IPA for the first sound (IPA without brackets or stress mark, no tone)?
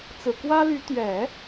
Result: t͡s